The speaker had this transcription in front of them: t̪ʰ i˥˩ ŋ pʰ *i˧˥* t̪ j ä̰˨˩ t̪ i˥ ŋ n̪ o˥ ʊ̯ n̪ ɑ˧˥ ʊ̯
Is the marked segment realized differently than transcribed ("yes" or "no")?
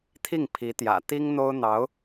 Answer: no